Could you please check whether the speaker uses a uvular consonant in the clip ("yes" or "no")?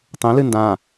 no